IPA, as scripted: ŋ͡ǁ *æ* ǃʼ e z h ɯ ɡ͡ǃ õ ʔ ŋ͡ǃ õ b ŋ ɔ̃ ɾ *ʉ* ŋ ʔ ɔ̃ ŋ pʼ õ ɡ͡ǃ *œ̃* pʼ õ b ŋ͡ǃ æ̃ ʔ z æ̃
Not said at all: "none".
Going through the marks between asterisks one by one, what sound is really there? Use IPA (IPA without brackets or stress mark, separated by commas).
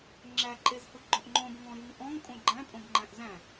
æ, ʉ, æ̃